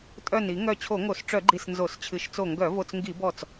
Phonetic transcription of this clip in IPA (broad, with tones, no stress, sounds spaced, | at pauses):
tʼ œ˧˩ n i˧˩˧ ŋ œ˧˩ t͡ɕʰ o˧˩˧ ŋ o˧˩˧ s ʈ͡ʂ œ˧˩˧ ɡ͡ǃ i˧˩ s n z o˧˩˧ s t͡ɕʰ ɨ˧˩ ʃ t͡s o˧˩ ŋ ɡ œ˧˩˧ v o˧˩ t͡s ŋ ɡ i˧˩˧ b ɔ˧˩ t͡s